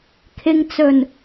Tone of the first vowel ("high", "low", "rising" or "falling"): low